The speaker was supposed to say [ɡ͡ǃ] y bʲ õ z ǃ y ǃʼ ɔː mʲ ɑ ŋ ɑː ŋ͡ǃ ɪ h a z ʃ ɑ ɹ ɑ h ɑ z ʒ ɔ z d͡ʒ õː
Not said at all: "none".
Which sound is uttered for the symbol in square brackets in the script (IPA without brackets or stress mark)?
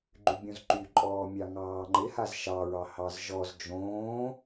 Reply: ɡ͡ǃ